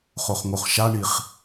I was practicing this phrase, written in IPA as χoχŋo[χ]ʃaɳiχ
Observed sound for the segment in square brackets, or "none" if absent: χ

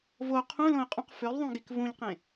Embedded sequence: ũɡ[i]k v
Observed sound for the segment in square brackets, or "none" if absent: i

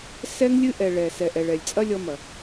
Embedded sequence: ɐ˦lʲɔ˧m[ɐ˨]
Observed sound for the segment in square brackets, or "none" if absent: ɐ˨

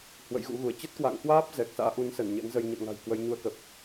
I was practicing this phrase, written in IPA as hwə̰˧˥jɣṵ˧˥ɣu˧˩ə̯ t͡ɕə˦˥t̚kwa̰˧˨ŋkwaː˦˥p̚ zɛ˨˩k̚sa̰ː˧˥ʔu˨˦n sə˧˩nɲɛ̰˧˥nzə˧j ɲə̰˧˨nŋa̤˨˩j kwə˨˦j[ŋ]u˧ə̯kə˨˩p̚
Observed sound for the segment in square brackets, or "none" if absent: ɲ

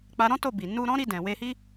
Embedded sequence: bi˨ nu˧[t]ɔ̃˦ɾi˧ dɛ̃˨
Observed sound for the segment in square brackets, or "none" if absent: ɾ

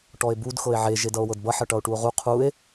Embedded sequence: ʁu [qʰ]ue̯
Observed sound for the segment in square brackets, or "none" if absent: qʰ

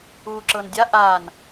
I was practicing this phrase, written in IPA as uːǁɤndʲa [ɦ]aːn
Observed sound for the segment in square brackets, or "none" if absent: ʔ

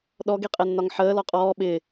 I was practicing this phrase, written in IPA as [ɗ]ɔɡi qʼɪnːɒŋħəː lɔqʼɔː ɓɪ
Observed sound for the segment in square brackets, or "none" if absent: ɗ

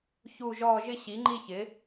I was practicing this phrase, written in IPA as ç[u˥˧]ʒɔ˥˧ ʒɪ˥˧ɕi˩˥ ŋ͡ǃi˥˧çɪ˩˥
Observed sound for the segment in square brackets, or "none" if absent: u˥˧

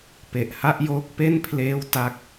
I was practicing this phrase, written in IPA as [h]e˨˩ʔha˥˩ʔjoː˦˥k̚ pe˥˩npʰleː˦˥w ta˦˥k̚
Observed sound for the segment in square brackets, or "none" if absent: p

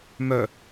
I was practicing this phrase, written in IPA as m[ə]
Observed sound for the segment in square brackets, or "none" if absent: œ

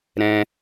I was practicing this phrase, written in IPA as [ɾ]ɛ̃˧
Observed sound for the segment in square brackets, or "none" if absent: ɾ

